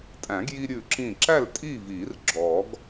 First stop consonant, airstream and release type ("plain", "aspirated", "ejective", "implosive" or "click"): ejective